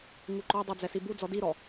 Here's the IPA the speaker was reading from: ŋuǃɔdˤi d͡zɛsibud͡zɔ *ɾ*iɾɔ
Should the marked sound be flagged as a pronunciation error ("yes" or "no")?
yes